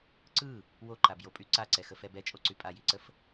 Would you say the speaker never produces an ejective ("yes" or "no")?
no